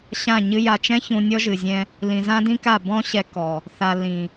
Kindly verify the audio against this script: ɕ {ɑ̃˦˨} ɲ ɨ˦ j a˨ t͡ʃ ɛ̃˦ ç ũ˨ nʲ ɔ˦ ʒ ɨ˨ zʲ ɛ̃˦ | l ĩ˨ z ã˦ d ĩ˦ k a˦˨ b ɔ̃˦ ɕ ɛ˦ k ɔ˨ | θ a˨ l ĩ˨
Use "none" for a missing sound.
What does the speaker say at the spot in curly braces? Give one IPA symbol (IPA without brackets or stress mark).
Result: ã˦˨